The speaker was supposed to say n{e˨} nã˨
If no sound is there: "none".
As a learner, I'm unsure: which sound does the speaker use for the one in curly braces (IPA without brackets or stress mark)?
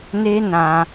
e˦